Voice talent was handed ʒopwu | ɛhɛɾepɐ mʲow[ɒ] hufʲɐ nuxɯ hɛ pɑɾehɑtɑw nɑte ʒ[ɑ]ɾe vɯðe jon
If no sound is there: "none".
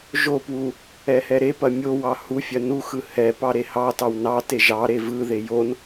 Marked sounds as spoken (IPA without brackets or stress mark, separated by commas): ɑ, ɑ